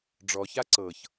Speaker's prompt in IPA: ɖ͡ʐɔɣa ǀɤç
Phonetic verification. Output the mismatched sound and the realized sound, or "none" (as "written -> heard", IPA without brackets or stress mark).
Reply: ɣ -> ç